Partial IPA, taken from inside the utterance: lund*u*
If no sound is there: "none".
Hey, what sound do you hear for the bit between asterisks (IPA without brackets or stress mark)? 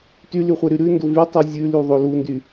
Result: y